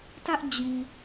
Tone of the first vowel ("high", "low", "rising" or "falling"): high